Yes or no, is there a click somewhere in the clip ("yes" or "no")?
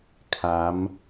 no